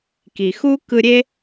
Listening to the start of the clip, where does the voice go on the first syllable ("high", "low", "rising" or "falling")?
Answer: low